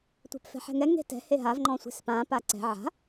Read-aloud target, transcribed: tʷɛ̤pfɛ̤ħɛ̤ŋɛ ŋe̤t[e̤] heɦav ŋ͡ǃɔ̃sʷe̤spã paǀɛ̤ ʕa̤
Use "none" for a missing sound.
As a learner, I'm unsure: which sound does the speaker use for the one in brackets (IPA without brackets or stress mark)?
ɛ̤